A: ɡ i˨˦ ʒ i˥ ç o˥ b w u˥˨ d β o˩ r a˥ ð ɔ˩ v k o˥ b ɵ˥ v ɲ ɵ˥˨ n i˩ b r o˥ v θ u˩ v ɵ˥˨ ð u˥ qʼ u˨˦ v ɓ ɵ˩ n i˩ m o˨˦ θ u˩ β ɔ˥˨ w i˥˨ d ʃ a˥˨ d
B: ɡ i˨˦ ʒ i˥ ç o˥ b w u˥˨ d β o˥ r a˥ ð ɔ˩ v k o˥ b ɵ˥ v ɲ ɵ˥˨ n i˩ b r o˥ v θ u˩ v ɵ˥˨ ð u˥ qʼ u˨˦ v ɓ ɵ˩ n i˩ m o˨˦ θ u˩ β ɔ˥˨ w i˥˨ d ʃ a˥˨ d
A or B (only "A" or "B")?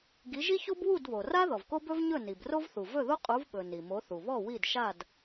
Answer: A